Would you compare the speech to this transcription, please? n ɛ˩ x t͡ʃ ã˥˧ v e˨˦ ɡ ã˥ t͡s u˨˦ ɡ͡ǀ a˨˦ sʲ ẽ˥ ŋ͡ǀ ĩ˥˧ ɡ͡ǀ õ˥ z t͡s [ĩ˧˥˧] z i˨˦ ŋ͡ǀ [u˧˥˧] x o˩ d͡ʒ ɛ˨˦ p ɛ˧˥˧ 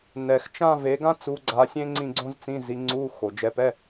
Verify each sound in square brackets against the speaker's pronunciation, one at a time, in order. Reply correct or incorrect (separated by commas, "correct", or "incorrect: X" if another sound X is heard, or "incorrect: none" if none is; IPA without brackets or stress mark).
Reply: correct, correct